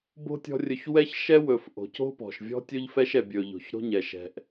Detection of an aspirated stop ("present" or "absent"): absent